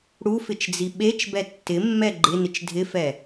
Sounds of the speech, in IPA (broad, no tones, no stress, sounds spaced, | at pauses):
ɽ u f ɪ t͡ʃ d͡z i ɓ e t͡ʃ b ɛ tː ɪ mː ɛ ɡ͡ǃ ɪ n ɪ t͡ʃ dʱ ɪ f ɛ